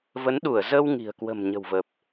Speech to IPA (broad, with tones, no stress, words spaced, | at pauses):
və˨˦nɗu˧˩ə̯ zə˧wŋi̤˨˩ə̯kwə̤˨˩m ɲə̤˨˩wvə˨˩p̚